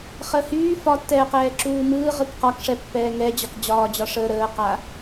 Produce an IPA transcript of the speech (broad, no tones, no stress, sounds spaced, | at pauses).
χ əː h yː f ɒ tː ɛː q ɛː ǁ uː m ɯː ʁ ɯ k q ɒ k ʂ ɛ pː ɛː ŋ ɛ d͡ʑ ɒ k d͡ʑ ɒː d͡ʑ ɒ ʂ əː ɾ əː q a